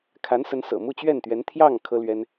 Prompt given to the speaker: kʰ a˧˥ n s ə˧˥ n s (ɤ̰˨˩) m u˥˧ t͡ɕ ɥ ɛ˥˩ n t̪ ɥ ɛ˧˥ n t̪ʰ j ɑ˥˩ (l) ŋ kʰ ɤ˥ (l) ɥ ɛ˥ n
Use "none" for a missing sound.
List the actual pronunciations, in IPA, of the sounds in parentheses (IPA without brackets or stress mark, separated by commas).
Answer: ɤ̰˨˩, none, l